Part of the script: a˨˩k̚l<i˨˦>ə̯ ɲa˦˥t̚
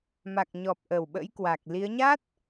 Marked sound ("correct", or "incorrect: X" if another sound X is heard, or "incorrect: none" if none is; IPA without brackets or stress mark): correct